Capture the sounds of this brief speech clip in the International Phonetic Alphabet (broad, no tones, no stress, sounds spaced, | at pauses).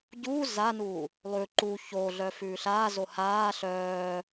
ɟ uː z a n uː | lˠ ʉ ǃ u ç oː ɮ œ f ʉː ɬ aː z o h aː ɬ œː